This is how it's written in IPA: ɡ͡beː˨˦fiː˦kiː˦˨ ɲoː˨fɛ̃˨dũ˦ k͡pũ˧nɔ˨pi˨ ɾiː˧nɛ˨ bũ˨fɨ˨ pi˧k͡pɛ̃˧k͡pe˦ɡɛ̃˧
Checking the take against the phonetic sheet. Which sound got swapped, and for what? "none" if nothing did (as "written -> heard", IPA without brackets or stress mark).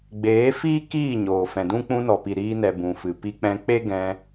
none